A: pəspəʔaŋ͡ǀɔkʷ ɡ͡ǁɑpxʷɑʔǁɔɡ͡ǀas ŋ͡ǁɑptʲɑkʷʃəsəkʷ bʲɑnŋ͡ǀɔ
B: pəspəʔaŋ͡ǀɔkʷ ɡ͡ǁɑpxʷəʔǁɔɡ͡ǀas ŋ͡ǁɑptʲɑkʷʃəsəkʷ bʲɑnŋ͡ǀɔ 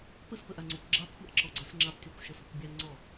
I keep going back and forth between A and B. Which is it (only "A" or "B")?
A